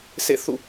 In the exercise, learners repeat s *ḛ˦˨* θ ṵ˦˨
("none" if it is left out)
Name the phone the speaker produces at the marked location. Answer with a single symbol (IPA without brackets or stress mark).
ḛ˦˨